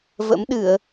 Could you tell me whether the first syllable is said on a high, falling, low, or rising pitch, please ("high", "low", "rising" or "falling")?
rising